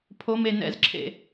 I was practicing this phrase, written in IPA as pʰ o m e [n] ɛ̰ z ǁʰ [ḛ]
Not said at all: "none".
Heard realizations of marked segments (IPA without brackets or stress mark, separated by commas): n, ḛ